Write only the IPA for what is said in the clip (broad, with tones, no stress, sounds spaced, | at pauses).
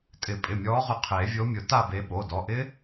tʼ ɪ˨˩˦ pʼ ɪ˩˧˩ mʲ ɔː˨˦ ʁ ʊ˨˦ qʰ e˨˩˦ vʲ o˨˦ mʲ ʊ˨˩˦ t a˦˨ b e˨˦ ɓ o˩˧˩ d ɔ˩˧˩ ʔ ɪ˦˥